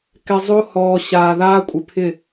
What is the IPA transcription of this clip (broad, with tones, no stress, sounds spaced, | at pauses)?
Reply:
k ɛ˨ zˤ o˦ h ɔː˨ ɕ aː˨ ð aː˦ kʷʼ ɪ˨ pʰ ɪ˦˨